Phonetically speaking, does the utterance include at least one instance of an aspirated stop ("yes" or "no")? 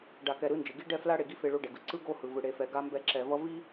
no